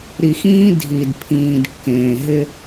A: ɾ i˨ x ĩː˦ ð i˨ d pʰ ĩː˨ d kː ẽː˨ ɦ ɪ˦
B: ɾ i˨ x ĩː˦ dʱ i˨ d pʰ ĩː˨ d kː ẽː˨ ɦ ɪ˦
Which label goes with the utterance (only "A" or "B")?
B